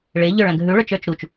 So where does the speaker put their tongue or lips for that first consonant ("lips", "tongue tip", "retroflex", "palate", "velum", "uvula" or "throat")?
retroflex